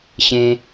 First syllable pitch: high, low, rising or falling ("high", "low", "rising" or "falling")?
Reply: high